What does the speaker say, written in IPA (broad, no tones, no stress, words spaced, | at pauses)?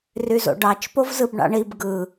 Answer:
ryzo̰ɖɑt͡ʃ povzɯbɳɑ̰ɳib ɡɯ